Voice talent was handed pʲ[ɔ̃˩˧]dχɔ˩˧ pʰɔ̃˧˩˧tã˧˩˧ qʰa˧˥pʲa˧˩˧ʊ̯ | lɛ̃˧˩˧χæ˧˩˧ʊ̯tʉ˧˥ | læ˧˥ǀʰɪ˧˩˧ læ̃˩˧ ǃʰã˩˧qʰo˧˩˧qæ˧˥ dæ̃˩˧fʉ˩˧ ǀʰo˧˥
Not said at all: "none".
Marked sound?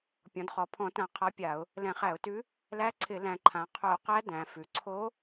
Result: ɔ̃˩˧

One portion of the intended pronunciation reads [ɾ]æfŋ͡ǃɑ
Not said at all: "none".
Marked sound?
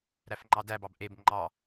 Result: ɾ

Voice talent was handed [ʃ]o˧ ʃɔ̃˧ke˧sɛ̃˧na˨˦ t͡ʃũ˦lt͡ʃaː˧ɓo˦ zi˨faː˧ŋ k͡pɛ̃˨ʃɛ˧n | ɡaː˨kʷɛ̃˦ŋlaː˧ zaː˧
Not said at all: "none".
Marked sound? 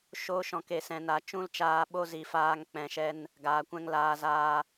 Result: ʃ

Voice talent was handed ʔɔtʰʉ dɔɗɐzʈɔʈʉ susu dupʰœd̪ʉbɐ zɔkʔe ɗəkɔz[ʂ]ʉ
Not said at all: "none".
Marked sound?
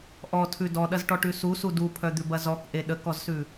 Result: s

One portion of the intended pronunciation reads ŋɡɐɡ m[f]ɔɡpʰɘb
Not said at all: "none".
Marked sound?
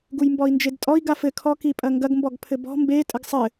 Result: b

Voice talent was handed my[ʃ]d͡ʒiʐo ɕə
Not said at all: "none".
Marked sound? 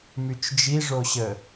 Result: t͡ʃ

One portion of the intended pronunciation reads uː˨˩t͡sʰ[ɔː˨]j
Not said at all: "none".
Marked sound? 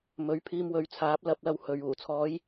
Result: ɔː˨˧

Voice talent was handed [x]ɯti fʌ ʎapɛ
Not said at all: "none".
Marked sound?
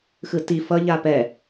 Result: x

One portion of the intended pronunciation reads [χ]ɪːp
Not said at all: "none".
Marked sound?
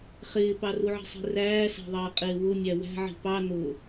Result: χ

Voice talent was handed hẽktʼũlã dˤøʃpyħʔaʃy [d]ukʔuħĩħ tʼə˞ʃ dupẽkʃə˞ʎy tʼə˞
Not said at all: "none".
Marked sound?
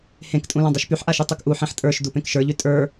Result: tˤ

